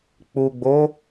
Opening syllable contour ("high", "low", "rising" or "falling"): low